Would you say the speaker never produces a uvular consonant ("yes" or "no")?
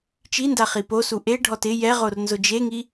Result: no